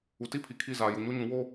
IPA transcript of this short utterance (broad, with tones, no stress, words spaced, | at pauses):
u˨ti˦ pʰi˨kʰi˦˨ zaː˨ ju˨ɲo˦ɲũ˨˦ wo˦